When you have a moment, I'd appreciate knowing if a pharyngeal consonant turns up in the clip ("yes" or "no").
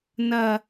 no